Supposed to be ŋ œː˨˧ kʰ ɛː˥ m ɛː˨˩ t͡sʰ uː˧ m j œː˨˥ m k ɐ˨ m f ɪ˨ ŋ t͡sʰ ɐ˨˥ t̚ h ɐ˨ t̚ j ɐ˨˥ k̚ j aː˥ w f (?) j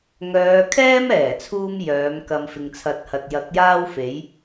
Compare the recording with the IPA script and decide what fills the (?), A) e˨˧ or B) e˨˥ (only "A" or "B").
B